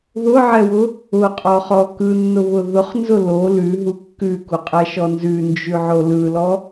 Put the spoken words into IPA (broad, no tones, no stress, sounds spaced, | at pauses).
ð ʊ ʕ ɛ w ʊ | ʊ qʼ ɔ χ ɔ k ɯ nː ʊ β ʊ ð ʊ χ n z ʊ l o l ʉ ɦ u kː ʉ k u qʼ ɛ ʃ ɔ n z ʉ n d͡ʒ ʉ ʕ o l ɯ l ɔ